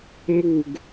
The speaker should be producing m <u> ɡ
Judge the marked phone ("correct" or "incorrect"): correct